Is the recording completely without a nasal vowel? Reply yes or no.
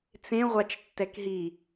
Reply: no